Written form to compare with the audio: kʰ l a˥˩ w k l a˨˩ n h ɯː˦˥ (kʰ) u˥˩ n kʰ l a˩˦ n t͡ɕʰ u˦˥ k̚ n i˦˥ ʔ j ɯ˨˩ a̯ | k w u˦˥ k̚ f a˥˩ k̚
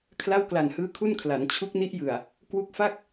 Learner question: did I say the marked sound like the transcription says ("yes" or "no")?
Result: yes